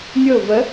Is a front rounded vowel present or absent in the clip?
absent